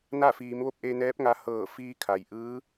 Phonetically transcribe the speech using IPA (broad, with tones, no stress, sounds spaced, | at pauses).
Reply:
n a˥˨ f iː˩˧ m ʋ o˥˨ p̚ ʔ e˧ n ɛː˧˥ p̚ ŋ a˧ h ɤː˧˩ f iː˧ kʰ a˩ j ʔ ɯː˧˥